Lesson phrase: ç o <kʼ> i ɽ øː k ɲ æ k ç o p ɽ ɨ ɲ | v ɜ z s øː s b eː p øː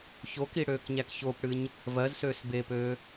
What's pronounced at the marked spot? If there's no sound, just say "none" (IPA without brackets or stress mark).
k